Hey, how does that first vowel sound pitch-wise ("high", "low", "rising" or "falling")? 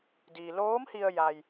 low